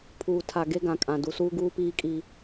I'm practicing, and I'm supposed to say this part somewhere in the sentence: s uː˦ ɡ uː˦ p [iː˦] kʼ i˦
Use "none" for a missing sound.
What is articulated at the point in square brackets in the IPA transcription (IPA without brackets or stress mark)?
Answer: iː˦